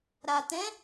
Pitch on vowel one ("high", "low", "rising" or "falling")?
low